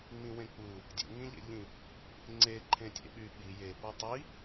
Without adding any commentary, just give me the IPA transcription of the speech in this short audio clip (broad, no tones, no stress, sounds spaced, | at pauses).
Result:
ŋ͡m ĩ w ẽ k͡p u | dʲ ṵ ŋ ĩ ʎ ḛ ʎ ĩ | ŋ͡ǀ e ǃʰ ẽ tʲ ḛ ɓ y ɓ i j e p u tˤ i